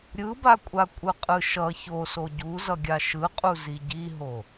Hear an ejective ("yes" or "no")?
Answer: yes